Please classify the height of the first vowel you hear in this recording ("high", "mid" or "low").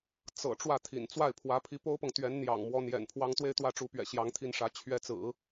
mid